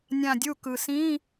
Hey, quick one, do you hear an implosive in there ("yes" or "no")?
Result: no